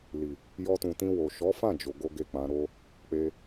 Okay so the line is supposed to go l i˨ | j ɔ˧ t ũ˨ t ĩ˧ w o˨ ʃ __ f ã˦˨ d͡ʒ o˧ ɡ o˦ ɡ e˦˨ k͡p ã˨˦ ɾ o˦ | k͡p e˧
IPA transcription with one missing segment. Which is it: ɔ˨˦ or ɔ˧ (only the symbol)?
ɔ˨˦